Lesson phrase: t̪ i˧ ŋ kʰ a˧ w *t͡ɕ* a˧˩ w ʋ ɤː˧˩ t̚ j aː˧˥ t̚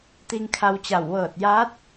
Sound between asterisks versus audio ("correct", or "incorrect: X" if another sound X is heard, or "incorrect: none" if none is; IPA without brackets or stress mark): correct